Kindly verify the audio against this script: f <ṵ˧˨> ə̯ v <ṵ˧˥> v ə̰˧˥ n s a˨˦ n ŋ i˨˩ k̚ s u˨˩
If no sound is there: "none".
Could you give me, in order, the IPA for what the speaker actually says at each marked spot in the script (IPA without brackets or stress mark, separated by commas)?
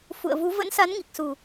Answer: ṵ˧˨, u˨˦